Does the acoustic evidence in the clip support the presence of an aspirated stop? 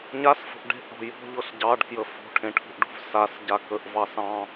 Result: yes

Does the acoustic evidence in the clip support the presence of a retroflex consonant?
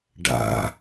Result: yes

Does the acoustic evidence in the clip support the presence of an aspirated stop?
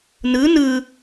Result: no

